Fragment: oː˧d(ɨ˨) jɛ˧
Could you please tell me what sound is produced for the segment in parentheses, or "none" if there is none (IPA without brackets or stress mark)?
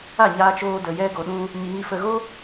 ə˨